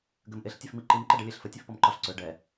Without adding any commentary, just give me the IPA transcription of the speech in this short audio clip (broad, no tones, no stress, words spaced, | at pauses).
ɡɘmʔeɬ tʲɛfmiǃim ǃɛɖɛlʲeɬfə tʲefpɔmǃɒɬ ǀø ɖɛ